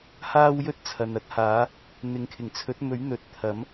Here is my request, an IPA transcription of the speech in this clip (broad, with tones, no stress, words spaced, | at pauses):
haː˥wjɵ˥t̚t͡sʰɐ˨n ɐ˥t̚haː˨˥ | n̪ɪ˨˧ŋkʰɪ˨˩ŋt͡sʰɵ˨˥t̚mɵ˨˥ɥ n̪ɵ˨t̚ t̪ʰɐ˨˥m